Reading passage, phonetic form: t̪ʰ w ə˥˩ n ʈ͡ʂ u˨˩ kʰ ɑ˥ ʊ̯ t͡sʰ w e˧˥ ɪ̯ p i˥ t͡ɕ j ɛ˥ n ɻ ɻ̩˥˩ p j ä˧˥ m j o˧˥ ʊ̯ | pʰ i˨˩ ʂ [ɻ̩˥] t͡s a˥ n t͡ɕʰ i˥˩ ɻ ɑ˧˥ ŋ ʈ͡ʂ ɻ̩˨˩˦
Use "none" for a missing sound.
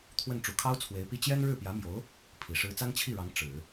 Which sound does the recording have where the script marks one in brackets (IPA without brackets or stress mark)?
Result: ɻ̩˥